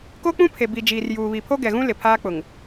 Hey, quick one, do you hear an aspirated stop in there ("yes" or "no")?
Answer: yes